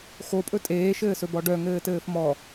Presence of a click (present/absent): absent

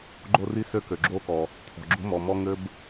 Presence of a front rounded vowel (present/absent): present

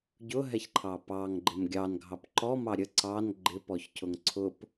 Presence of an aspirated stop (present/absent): present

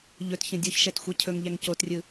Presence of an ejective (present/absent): absent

